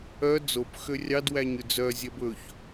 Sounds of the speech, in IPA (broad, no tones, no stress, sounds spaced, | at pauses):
œ d͡z o p x ø rʲ ɑ d w æ ɲ ʉ d͡z œ zʲ ɛ b ɵ ç